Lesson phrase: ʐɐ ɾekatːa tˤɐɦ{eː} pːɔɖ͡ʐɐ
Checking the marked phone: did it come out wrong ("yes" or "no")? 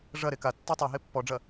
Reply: yes